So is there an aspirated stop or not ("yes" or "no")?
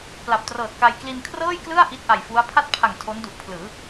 yes